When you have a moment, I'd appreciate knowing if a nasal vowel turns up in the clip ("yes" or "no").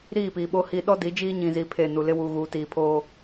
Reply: yes